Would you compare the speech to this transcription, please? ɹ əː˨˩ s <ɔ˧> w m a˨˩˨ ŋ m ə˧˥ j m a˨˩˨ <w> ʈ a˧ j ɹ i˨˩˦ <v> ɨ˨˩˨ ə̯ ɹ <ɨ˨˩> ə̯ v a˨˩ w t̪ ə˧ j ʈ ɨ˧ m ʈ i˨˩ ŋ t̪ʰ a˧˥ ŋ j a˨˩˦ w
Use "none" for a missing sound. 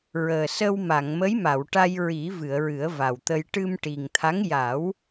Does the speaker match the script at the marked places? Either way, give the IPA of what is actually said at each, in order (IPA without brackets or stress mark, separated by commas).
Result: ə˧, w, v, ɨ˨˩˦